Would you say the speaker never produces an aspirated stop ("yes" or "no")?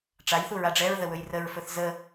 yes